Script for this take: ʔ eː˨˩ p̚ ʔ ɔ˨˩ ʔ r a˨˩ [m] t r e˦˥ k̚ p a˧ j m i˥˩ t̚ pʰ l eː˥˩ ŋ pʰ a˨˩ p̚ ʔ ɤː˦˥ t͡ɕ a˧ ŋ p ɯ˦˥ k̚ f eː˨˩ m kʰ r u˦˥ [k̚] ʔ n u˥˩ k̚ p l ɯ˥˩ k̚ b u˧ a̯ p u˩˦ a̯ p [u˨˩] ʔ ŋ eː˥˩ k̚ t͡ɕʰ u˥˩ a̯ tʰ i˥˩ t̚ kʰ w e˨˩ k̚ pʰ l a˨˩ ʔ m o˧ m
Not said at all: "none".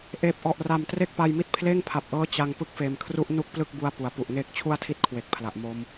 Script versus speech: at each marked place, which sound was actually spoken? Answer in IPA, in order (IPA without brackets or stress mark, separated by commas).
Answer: m, none, u˨˩